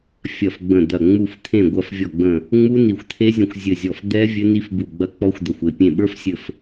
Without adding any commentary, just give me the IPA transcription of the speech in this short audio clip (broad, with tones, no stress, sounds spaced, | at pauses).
fʲ ɐ˧˩ f ɡ͡b ə̃˧˩ d̪ ɐ˧˩ ŋ͡m u˧˩ f t̪ʰ ẽ˧˩ ɡʷ ɐ˧˩ f vʲ ɔ˧˩ ɡ͡b ə̃˧˩ | ŋ͡m u˦˥ n i˧˩ xʷ t̪ʰ e˦˥ zʲ ə̃˧˩ xʷ zʲ ɘ˧˩ zʲ ɔ˧˩ f d̪ ɛ˦˥ vʲ ɘ˦˥ n i˦˥ f b u˧˩ ɡ͡b ɐ˦˥ k͡p ɔ˦˥ xʷ d̪ ɐ˧˩ xʷ e˧˩ pʲ ẽ˧˩ ɓ ə˞˦˥ f sʲ ɘ˧˩ f